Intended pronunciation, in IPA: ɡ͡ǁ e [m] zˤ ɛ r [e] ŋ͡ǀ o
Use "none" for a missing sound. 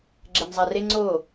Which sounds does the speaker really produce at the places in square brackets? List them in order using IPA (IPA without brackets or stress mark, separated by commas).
m, e